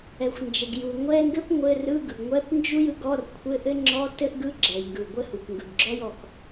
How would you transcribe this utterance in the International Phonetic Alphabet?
ɛ˩ xʷ n d͡ʒ ɘ˩ ɡ j u˩ ŋʷ ɛ˧˥˧ ŋ ɡ ɘ˥ p ŋʷ ɘ˧˥˧ r ɯ˧˥˧ ɡ ɯ˩ ɡ ŋʷ ɛ˧˥˧ p n d͡ʒ u˥ j ɯ˧˥˧ ɡ ɔ˧˥˧ r kʷʰ ɘ˧˥˧ ʔ ɘ˥ ŋ͡ǁ ɔ˧˥˧ t ɘ˥ ʔ ɡ ɯ˧˥˧ ɡ͡ǁ ɛ˩ j ŋ ɡ ɯ˩ ɡʷ ɘ˥ h u˩ k ŋ ɡ ɯ˩ ɡ ɡ͡ǁ ɔ˥ j ɔ˩ k

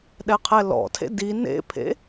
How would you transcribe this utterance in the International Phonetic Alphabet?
ɗ ɛ qʰ ɛ l ɔ̰ tʰ ḛ d i n ḛ pʰ ḛ

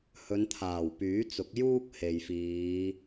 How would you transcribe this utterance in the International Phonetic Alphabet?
h ɵ˨˧ n t̪ʰ aː˨˩ w p yː˨˥ t͡s ʊ˨˥ k̚ j uː˥ k̚ h e˨ j f iː˨˧

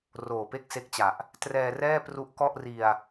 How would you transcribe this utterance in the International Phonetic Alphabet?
r oː˨˩ p e˥˩ k̚ s e˦˥ k̚ t͡ɕ a˨˩ ʔ | t r ɛː˧ r ɛː˥˩ p r u˦˥ ʔ k ɔ˥˩ ʔ r i˧ a̯

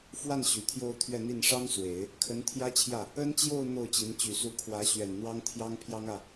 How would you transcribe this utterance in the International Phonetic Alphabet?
f w a˥˩ n ɕ y˨˩ t̪ʰ j o˥˧ ʊ̯ t̪ʰ ɥ ɛ˥˧ n̪ i˥˩ n ʂ ɑ˥ ŋ s w e˨˩˦ ɪ̯ | kʰ ə˧˥ n t̪ʰ j ä˥ t͡ɕʰ j ä˥˩ | ə˥ n t͡ɕ j o˥˧ ʊ̯ n̪ o˥˩ ʊ̯ t͡ɕ i˧˥ n t͡ɕ y˨˩ s u˧˥ kʰ w ä˧˥ ɕ ɥ ɛ˨˩ n n̪ w ɑ˥ ŋ t̪ʰ j ɑ˥ ŋ pʰ j ɑ˥ ŋ ä˥˩

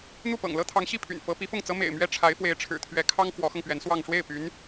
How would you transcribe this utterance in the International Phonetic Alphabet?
n̪ u˥˩ p ɤ̰˨˩ ŋ l ɤ˥ t̪ʰ ɑ˧˥ ŋ ɕ i˥˩ pʰ y̰˨˩ n f ɤ˧˥ p i˧˥ f ʊ˥˩ ŋ t͡s ɤ˥ m ḛ˨˩ ɪ̯ m ɥ ɛ˥ ʈ͡ʂʰ a˧˥ ɪ̯ f w e˧˥ ɪ̯ ʈ͡ʂʰ ɻ̩˨˩ t̪ʰ ɥ ɛ˧˥ kʰ ɑ˥ ŋ f w ɔ˧˥ x ɤ˧ ŋ p ɥ ɛ˧˥ n s w ɑ˥˧ ŋ ʂ w e˥˩ ɪ̯ p y˧˥ n

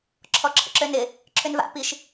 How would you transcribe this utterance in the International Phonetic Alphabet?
ǁʰ ɔ ǁʰ ə̰ ǁ ø n ɪ | ǁʰ ʏ n v a̰ p i ʃ

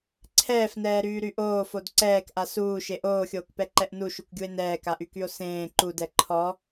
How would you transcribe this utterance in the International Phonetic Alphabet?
ǀʰ ɛː f n ɛː ɾ yː ɾ y ʔ oː f o d ǀ ɛː k ʔ a s uː ʃ e ʔ oː xʲ oː k p ɛ ǃ ɛ ʔ n u ʃ u kʷ ɡʲ u e̯ n ɛː k a ʔ y k y o̯ s ẽː ǃ u d ɛ ǃʰ ɔ

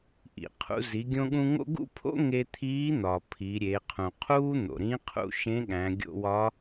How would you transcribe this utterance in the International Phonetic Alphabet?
ʔ ḭ˩ qʰ ṵ˧ z i˩˧ ɡʲ õ˧ ɠ ũ˧ ŋ o̰˥ ɡ ṵ˥ pʰ o̰˥ ŋ e˧ t̪ʰ iː˧˥ n̪ ɒː˩ pʰ i˩˧ ɾʲ e˩˧ qʰ ũ˩ qʰ uː˥ n̪ o̰˩ ɾ ĩ˧˥ qʰ ṵ˧ ʃ ẽ˧˥ ɠ æ̃˩˧ ɡʲ o̰˧ w ɒ˧˥

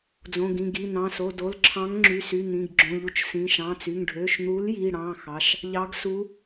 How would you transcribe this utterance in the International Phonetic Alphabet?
d͡z õ˩˧˩ ɡ ĩ˩˧˩ ɡ i˩˧˩ n̪ ɑ̃˩˧˩ s o˩˧˩ d o˩˧˩ l ǁʰ ɑ̃˨˥ ŋ ŋ͡ǁ y˩˧˩ s y˩˧˩ n̪ ĩ˩˧˩ ɡ ɡ͡ǁ õ˩˧˩ ʎ u˨˥ t͡ʃ s ĩ˩˧˩ ʃ ɑ̃˩˧˩ t͡s y˩˧˩ ŋ ɖʱ ø˩˧˩ ʃ n̪ u˨˥ l j i˩˧˩ ɽ ɑ̃˩˧˩ x ɑ˩˧˩ ʃ | ʎ ɑ˨˥ ɡ s u˨˥

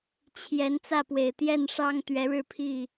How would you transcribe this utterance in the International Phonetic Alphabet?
t͡ɕʰ j ɛ˨˦ n t͡s ä˥˨ p w e˨˩ ɪ̯ t̪ j ɛ˥˨ n ʂ ɑ˦ ŋ t̪ ɥ ɛ˨˦ ɻ ɻ̩˥˨ pʰ i˥˨

